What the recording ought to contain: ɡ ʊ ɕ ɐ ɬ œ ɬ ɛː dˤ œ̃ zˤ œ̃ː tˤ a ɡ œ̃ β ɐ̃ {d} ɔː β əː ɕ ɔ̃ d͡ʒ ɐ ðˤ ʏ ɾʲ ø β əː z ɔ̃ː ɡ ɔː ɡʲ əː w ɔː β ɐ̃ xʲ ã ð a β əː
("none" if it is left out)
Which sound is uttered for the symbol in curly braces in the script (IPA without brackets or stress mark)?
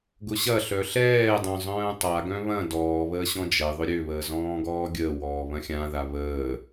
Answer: d